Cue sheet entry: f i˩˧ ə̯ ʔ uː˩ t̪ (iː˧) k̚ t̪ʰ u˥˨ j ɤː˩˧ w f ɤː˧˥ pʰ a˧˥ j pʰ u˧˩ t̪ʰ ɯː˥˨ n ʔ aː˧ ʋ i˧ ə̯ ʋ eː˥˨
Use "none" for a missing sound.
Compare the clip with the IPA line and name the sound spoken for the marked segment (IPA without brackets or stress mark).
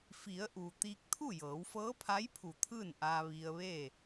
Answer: iː˧